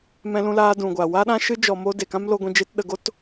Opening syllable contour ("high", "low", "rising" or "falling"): high